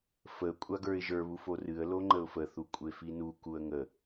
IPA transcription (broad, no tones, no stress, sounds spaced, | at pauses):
f ə kʷʼ a ɡ ə˞ ɪ̯ ʒ ə˞ β u f o r ɨ ə̯ l o ŋ͡ǃ ə ʊ̯ f ə θ u kʷʼ e f i n u k u ə̯ ŋ ə